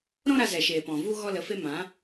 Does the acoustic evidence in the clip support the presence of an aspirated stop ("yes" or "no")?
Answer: no